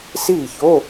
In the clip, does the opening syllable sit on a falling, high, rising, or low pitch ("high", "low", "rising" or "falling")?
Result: falling